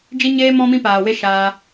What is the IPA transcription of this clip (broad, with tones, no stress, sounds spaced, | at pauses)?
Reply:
d͡ʒ i˦ ɲ eː˦ m ɔ̃˦ m ĩ˦ p aː˨ w e˦ ʃ aː˧